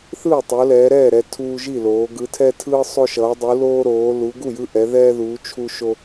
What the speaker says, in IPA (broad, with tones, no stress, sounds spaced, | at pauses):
θ ɯː˥˩ tˤ o˨˦ l ɛː˨˦ ɾ ɛː˥˩ ɾ ɛ˦ tʰ uː˦ ʒ i˥˩ l oː˨˦ ɡ ɯ˨˦ tʰ ɛ˦ tʰ ɯː˦ sˤ o˦ ʃ ʌː˨˦ dˤ u˨˦ l oː˦ ɾ oː˨˦ l u˨˦ ɡ u˥˩ j ɯ˦ ʔ ɛ˨˦ ð ɛː˦ ð uː˨˦ t͡ʃʰ u˦ ʃ o˦